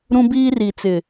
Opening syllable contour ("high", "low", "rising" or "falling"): high